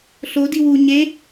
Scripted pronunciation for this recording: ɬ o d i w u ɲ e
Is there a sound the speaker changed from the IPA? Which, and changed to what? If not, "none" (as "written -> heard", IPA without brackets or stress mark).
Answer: none